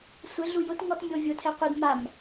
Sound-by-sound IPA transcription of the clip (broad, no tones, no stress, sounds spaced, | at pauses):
sʷ ɪ ɮ u j ʊ t ŋ ɔ t mʲ o vʲ ʊ tʰ ɛ qʷ ɪ d m a m